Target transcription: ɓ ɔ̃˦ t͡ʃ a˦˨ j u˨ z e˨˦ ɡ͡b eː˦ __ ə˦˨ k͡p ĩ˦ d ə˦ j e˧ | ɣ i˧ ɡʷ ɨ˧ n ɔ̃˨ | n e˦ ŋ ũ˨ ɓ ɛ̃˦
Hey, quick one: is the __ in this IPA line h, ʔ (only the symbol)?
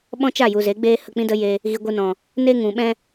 h